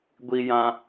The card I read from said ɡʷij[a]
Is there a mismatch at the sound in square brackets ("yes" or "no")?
yes